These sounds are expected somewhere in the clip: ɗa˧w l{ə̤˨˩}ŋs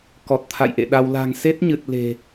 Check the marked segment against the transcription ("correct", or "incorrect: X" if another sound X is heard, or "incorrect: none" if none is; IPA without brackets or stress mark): incorrect: a̤˨˩